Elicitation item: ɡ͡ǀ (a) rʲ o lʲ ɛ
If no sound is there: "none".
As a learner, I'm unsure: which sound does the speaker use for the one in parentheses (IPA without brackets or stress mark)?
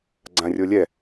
ã